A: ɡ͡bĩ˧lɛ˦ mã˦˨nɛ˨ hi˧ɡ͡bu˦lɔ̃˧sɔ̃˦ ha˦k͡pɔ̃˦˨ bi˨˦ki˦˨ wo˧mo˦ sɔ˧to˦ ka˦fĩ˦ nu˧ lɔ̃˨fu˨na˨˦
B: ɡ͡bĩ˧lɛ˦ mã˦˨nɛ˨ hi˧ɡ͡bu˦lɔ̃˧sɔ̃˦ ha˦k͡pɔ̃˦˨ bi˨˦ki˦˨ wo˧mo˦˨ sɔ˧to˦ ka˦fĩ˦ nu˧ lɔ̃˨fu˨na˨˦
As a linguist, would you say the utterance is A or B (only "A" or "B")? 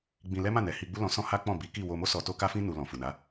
A